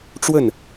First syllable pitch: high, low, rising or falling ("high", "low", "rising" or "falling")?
falling